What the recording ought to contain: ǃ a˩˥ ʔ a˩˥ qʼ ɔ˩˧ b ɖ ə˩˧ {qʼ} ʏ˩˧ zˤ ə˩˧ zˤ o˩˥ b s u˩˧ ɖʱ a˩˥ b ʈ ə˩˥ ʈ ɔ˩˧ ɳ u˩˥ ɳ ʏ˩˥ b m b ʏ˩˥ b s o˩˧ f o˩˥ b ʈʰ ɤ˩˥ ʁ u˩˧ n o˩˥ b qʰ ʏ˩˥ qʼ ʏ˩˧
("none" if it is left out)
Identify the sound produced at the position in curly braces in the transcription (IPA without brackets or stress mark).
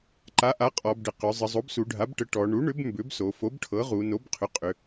q